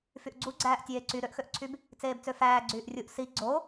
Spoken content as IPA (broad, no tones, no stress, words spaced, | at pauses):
fyʔɡ͡ǀuɡ͡ǀæːʔ tʲeːǀy ɾøʔxøʔǀʰyb | t͡seːbt͡søfæː ɡ͡ǀyːʔrʲuʔ si ɡ͡ǀo